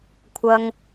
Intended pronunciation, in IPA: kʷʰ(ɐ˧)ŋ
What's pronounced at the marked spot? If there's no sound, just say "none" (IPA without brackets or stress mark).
ɐ˥